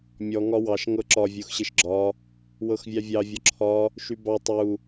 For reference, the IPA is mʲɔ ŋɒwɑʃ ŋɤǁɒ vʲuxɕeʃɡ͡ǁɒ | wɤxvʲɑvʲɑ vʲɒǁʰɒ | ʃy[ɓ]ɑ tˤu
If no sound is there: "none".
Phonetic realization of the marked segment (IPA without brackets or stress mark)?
b